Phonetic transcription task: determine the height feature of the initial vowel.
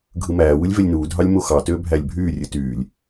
high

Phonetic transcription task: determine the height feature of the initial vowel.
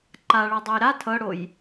low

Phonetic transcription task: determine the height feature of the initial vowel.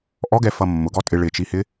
mid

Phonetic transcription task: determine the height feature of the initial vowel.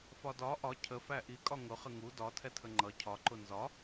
low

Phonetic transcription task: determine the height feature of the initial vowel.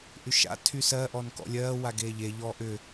high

